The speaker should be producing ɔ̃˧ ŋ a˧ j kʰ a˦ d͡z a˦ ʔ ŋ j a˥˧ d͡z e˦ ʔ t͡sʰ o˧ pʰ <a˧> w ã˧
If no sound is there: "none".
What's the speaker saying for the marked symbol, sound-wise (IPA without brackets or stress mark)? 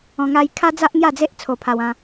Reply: a˧